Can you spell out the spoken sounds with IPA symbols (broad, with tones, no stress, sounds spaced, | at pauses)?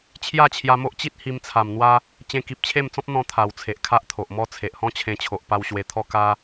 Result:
t͡ɕʰ j a˥˧ t͡ɕʰ j a˧ m o˦ ʔ t͡ɕ i˦ t̚ h i˧ m t͡sʰ a˨˩ m n̪ w a˦ | t͡ɕ ẽ˧ k i˨ p̚ t͡ɕʰ e˥˧ m t͡s ɔ̃˦ p̚ n̪ ɔ̃˦ t̪ʰ a˨˩ w t͡sʰ e˨ ʔ kʰ a˦ ʔ t̪ʰ o˨ ʔ m ɔ˦ t͡sʰ e˨ ʔ h ɔ̃˦ t͡ɕʰ ẽ˧ t͡ɕʰ o˨ ʔ p a˧ w ɕ w e˧ t̪ʰ ɔ˥˧ k a˦